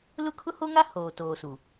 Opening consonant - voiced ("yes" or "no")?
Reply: yes